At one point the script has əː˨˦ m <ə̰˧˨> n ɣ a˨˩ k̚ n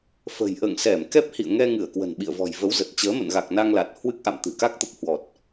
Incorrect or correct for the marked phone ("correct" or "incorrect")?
correct